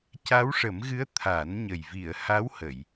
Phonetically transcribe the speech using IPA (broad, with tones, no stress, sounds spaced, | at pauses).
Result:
c a˧˥ w ʂ ə˨˩˦ m ɣ ɨ˧˥ ə̯ t̪ʰ a˨˩˦ n ɲ ə˨˩ j v i˨˩˨ ə̯ h a˧˥ w h ə˨˩˨ j